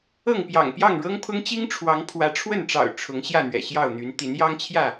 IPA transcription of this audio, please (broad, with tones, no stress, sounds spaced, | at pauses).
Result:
ɤ˥˨ ŋ p j ɑ̰˨˩ ŋ p j ɑ˥˨ ŋ ɻ ɤ˦ ŋ pʰ ʊ˦ ŋ t͡ɕ i˦ ŋ ʈ͡ʂʰ w ɑ˨˦ ŋ pʰ w ä˨˦ ʈ͡ʂʰ w ə˥˨ n ʈ͡ʂ ɑ̰˨˩ ʊ̯ ʈ͡ʂʰ ʊ˨˦ ŋ ɕ j ä˥˨ n̪ ɥ ɛ̰˨˩ ɕ j ɑ˥˨ ʊ̯ n̪ y˨˦ n t̪ i˨˦ n j ɑ˦ ŋ t͡ɕʰ j ä˥˨